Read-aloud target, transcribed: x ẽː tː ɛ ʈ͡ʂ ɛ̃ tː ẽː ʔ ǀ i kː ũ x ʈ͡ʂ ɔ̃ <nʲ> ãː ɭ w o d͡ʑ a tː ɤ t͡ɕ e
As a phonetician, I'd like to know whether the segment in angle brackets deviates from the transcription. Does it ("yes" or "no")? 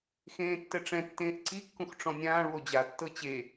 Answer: no